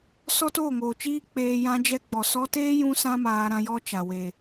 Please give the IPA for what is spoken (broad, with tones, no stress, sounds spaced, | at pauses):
s ɔ˦ t oː˦˨ ŋ oː˨ t͡ʃ iː˦ k͡p eː˧ j ã˧ d͡ʒ ɛ˧ ɡ͡b ɔ˨ s ɔ˧ t eː˦ j ũ˦ s ã˦ m aː˧ ɾ ã˧ j ɔ˦ t͡ʃ a˨ w e˨